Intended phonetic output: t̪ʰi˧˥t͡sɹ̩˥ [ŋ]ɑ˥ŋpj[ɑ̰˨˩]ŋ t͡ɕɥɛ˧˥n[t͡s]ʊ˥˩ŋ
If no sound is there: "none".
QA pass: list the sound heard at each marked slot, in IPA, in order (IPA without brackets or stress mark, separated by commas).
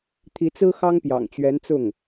x, ɑ̰˨˩, t͡s